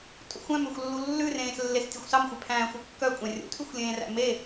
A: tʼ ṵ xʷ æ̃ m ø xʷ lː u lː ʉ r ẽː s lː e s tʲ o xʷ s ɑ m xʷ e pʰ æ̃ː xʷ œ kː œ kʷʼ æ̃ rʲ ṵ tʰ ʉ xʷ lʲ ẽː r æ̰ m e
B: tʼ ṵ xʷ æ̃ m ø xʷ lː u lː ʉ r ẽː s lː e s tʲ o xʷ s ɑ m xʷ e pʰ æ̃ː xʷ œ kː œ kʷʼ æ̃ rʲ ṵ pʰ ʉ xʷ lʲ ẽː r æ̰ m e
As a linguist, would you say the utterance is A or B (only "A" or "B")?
A